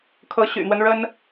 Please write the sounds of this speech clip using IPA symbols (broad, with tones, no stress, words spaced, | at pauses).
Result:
kʰɤ˧˥ɕy̰˨˩n̪wə˦nɻə˥n